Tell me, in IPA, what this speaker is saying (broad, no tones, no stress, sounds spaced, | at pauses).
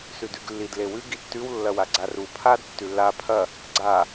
s ʉ d ʉ ɡ lː i d l e w ʉ ɡ i tː ʉ w lː ɐ w a ɡ͡ǀ a r u pʰ a d tː ʉ lː a pʰ ɐ | ɡ͡ǀ a